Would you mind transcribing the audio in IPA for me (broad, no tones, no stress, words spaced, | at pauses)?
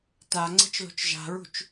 ta ŋ͡ǀe̤t͡ʃlo̤t͡ʃʒa̤ɹṳt͡ʃ